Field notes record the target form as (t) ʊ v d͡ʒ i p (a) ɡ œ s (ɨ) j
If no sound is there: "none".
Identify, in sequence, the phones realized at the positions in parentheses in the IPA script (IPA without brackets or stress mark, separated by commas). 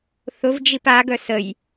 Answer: θ, a, ə